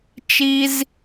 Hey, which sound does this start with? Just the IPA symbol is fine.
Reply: t͡ʃ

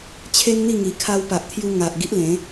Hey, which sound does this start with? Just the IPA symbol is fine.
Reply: t͡ɕʰ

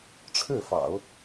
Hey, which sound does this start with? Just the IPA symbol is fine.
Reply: ʈ͡ʂʰ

